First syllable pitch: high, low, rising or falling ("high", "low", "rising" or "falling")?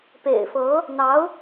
low